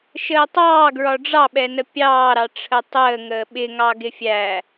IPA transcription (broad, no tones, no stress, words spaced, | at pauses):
ʃəːtˤɑː ɡɹɒɖ͡ʐɑɓɛnə pʲɑːɾɑ ʈ͡ʂʰətˤəː ŋəːɓɪŋɑ ɡɪfʲæ